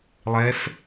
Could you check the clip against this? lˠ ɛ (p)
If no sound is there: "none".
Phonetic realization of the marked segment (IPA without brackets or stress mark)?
f